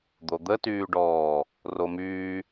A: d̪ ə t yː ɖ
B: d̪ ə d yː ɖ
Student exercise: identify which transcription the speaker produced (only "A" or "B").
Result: A